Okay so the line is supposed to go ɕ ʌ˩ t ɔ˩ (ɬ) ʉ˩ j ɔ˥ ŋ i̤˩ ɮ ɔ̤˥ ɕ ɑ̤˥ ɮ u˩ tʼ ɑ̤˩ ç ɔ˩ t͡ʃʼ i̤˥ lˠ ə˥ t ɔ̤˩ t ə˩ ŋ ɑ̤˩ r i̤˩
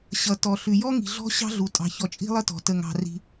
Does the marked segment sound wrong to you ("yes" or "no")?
no